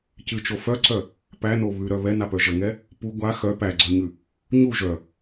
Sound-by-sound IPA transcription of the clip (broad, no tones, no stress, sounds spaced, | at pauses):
c ɨ t͡ʃ o f œ ǀ œ | p æ n o β ʉ ɾ œ β ɛ n a p œ ʒ ə ŋ ɛ | p u ɡʷ a x œ p æ ɡ͡ǀ œ ɲ ʉ | ɲ u ʒ œ